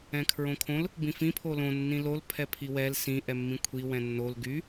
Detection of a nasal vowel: present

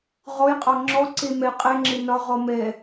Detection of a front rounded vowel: absent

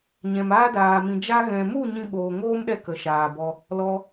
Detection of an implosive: present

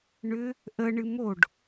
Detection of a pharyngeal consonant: absent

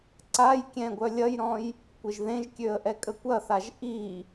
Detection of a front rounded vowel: present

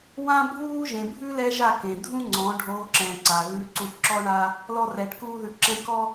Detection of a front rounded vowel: absent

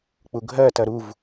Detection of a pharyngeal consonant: absent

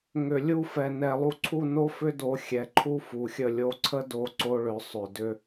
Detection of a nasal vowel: absent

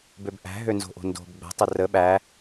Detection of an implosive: present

